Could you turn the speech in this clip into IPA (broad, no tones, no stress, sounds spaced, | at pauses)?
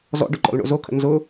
z ɔ̰ ɖ ʊ ǃ ɔ̰ l ɳ o̰ z o kʰ ə̰ n z ʊ